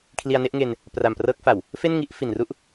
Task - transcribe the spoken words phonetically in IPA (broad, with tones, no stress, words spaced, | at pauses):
kʰli˧a̯ne˦˥ʔŋe˧n | pra˨˩mprɤː˦˥k̚fa˨˩w | fe˥˩nŋi˥˩ʔ fi˨˩n ru˥˩ʔ